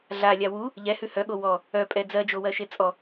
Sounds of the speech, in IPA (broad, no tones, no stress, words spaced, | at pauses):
ɮalʲa wu | ʎɛhʉ hœɠo wɔ | œpʼɛ d͡zɜd͡ʒowɜʃe t͡sʼɔ